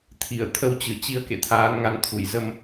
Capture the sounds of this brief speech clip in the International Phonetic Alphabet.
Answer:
t̪ʰ i˧˩ ə̯ t̪ʰ ə˧ w t͡ɕ ɨ˧˩ t͡ɕ i˧ ə̯ k ḛ˧˨ t̪ʰ aː˨˦ n ŋ a˨˦ n t̪ʰ u˧˩ j z ə˧ m

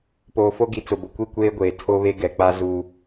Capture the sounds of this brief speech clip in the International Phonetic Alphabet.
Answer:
p oː˨ f o˦ ɡ i˨ t͡s ʊ˨ b ʊ˨ kʷ i˦˨ kʷ eː˦ ɡʷ eː˨ tʰ o˦ β e˦ ɡ ɛ˨ k͡p a˦ z u˦

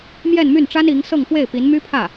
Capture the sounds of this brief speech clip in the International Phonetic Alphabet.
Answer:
m j ɛ˥˧ n m y˥˩ n ʈ͡ʂ a˥ n i˧˥ ŋ s ɤ˥˧ ŋ f w e˥˩ ɪ̯ p i˧˥ n m y˥ pʰ ä˥˩

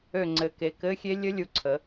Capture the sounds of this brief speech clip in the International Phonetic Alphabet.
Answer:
ø˦˨ ŋ͡ǀ ɘ˨˦ k e˨˦ k ɘ˧˥˧ xʲ e˦˥ lʲ ə˦˥ lʲ u˨˦ ǀʰ ə˨˦

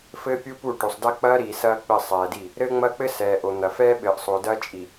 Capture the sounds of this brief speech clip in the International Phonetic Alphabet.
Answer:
f ɘː˦ pʲ u˦ p u˦˨ ʈ o˨ sˤ d ɐ˦ k͡p ɐː˦ ɾ iː˨ s ɐː˦ k͡p ɘ˦˨ sˤ ɛː˨ d i˦˨ | ɾ ɘː˦ ŋ͡m ɐ˦ k͡p ɘ˦ s ɛː˨ ʔ o˨ n̪ ɐ˨ f ɛː˦ ɓ ɘː˨ ʔ sˤ o˨ d ɐː˦ t͡ʃʼ i˨

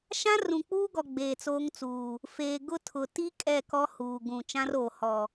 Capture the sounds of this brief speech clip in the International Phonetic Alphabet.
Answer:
ʃ ã˦ r ũ˨ k͡p uː˦ ɡ ɔ˨ ɡ͡b eː˨ t͡s oː˦ ŋ t͡s uː˨ | f eː˨ ɡ ʊ˦ tʰ ʊ˨ t i˦ kʼ ɛ˦˨ k ɔ˦ h uː˨ ɡ ũ˨ t͡ʃ ã˦ r oː˨ h ɔ˨

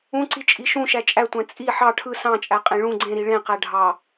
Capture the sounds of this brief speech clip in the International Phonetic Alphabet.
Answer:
ũ ǀ i t͡ʃʼ i ʃ ũ ʃ æ t͡ʃʼ æ tʷ æ̃ t͡sʼ i ħ ɑ ʈʰ ɯ s ɑ̃ t͡ʃʼ æ qʼ ẽ ɭ ũ ɡ͡ǀ ẽ ɾ i ɭ ẽ q æ ɖʱ ɑ

